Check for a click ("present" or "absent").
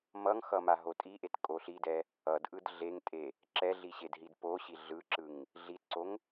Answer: present